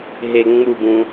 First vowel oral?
yes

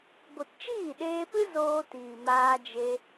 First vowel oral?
yes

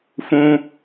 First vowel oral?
no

